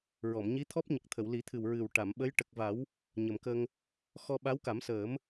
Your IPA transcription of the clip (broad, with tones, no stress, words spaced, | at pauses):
ɹɔ˨˩˨mɲi˧˥t̪ʰɔ˦˥p̚ɲə˨˩k̚ t̪ʰə˨˩˨wli˨˩˦t̪ʰɨ˨˩w ɹɨ˨˩wʈa˨˩˨mɓə˧˥j ʈə˨˩k̚va˨˩˦w | ɲə˨˩mkə˧ŋ | xɔ˧ɓa˧˥wka˨˩˦msəː˨˩˦m